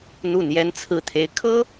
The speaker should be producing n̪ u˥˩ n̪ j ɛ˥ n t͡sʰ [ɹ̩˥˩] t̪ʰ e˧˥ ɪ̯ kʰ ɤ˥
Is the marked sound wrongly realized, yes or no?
no